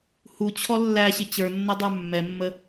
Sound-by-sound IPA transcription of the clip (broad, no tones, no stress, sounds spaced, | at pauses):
h u t͡ɕʰ ɔ lː æ ɕ ɪ t͡ɕ ə˞ nː ʌ dˤ ə˞ mː ɛ mː ə